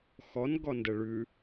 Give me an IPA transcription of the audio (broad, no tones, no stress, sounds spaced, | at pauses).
x ɔ n ɡ ɔ n d ə ɭ ʉ